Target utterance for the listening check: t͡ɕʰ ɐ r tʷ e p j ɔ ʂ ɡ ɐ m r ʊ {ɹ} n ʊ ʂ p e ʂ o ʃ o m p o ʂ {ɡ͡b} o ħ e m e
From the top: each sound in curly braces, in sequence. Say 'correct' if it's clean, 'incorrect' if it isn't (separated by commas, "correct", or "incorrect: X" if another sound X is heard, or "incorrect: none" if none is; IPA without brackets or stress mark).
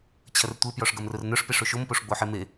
incorrect: r, correct